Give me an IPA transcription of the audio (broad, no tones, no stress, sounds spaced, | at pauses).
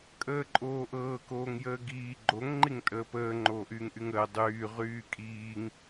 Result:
kʼ əː ǃʼ oː ʔ ɤː k oː ŋ j əː ɡ iː ɡ͡ǃ o ŋ ŋ͡ǃ i ŋ tʼ əː p əː ŋ͡ǃ oː ʔ yː ŋ ʔ y ŋ əː dˤ yː ʁ yː kʼ iː ŋ